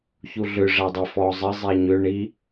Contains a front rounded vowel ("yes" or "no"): yes